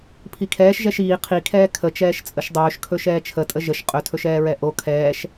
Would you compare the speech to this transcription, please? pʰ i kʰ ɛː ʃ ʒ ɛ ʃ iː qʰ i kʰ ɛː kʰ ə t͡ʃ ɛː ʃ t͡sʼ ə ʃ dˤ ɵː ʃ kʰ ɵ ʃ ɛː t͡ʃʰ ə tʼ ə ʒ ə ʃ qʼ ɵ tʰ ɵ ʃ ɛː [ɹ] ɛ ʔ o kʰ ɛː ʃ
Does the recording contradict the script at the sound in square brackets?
no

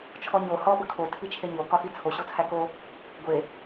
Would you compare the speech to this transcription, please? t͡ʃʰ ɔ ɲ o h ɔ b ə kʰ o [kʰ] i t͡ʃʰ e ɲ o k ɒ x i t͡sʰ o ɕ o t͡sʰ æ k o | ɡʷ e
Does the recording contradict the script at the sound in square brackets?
yes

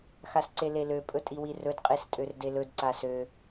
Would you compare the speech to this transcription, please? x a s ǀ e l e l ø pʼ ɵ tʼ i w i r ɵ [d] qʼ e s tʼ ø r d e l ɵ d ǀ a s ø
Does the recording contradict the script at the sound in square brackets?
no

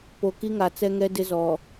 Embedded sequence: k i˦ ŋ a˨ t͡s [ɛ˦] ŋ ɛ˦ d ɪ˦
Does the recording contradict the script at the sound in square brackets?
no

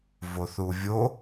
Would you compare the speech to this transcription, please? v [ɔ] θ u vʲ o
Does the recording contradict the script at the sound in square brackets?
yes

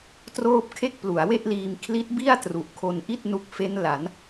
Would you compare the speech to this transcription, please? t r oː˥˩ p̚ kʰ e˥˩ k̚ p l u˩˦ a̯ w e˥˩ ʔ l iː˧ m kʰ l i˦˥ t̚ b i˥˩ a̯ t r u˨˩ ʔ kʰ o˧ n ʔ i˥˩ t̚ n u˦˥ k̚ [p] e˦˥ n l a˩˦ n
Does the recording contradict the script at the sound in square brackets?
yes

